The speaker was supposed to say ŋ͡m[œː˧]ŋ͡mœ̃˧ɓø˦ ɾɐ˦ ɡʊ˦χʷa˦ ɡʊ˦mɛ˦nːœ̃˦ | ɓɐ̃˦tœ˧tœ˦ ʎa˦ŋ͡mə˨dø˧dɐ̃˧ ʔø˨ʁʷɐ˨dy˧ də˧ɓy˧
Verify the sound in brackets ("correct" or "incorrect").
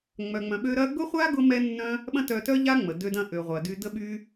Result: incorrect